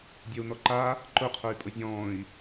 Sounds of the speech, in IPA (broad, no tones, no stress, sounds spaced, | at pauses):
dʲ œ u̯ n ɔ ǃ a | ǃ ʊ qʰ œ y̯ pʼ ʊ zʲ ɔ̃ː i̯